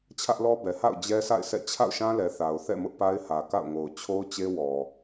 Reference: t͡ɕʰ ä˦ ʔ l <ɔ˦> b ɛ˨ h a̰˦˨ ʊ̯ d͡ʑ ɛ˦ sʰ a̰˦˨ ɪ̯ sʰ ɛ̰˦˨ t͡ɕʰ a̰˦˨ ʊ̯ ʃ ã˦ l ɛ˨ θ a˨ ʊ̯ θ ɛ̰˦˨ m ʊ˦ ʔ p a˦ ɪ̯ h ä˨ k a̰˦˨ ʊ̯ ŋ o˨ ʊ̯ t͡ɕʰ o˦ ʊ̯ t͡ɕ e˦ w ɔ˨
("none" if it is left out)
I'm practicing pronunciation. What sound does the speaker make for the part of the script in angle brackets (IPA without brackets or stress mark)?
ɔ˦